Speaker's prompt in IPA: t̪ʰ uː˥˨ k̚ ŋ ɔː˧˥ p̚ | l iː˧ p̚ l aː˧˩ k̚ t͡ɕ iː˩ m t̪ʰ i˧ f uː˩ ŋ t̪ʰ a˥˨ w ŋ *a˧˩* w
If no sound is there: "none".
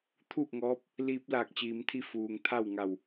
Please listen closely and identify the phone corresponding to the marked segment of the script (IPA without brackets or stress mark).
a˧˩